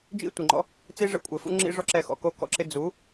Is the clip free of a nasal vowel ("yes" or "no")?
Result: yes